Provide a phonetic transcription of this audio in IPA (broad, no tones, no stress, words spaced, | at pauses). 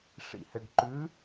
ʂḭhɘɖǃʉ